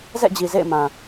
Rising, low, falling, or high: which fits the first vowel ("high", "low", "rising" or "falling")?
falling